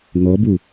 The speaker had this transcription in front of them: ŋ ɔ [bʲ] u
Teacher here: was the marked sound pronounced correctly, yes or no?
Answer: no